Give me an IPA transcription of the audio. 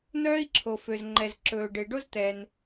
n̪œː˥i̯ǁʰo˩ fø˩zŋ͡ǃɛ˩zǁɵː˩ɖe˩ ɖo˥zt̪ɛ˩n

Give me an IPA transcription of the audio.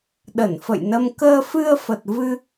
ɗə˧˩nfə̰˧˨jnə˧m kəː˧fɨ˧ə̯fə˨˩t̚ vɨ˧

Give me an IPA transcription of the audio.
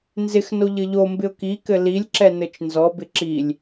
nzɪxno ʎɘʎombɪʊ̯ kikɘ lilʲǁɛ nɘt͡ʃnzɔbɪ ǁilʲ

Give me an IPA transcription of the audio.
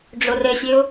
ɖ͡ʐorɘsʲɘʊ̯

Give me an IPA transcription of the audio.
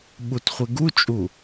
ɓutχʷeɡut͡ʃʼu

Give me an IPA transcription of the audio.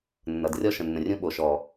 nːʌ˨drʲɔ˧ ʃə̃˨nːə̃˨rʲũ˧ ɓo˨ʃɔ˨

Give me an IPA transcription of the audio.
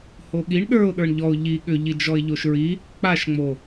hoɠiɳ ɗə˞ʊ̯ ɗə˞ɳʎɔʊ̯ ʎi ɠʏ ʎid͡ʒɔɪ̯ʎoʃɹi | k͡paʃŋ͡mo

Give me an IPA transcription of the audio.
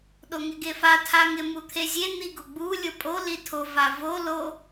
ɗoŋɪɡefa tʰaŋɪ mut̪ʰezʲe n̪iɡoɡ͡bu lʲopʼo litʰo vavo lo

